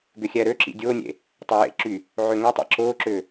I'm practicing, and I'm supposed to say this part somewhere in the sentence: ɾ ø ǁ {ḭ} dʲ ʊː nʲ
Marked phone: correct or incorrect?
correct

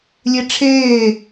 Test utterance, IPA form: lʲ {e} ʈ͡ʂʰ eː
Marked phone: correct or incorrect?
correct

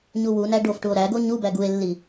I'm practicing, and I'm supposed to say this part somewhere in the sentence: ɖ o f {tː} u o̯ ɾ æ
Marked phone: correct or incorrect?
incorrect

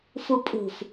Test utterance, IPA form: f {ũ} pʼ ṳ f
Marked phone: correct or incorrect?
incorrect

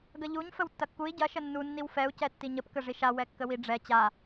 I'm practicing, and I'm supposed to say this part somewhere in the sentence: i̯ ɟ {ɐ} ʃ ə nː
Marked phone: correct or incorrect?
correct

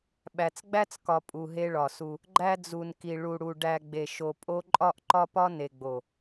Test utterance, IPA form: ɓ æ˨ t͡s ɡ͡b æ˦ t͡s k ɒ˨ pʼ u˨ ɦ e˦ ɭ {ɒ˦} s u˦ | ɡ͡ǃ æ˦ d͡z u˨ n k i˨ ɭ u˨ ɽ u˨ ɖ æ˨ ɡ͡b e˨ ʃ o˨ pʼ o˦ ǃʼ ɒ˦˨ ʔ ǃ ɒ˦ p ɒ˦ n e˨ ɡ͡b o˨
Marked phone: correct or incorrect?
incorrect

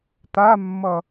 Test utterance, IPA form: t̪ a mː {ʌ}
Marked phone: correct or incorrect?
correct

